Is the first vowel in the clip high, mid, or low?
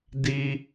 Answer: high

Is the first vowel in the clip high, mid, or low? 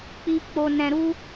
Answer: high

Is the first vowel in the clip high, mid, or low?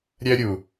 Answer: mid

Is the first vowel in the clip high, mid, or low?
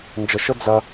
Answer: mid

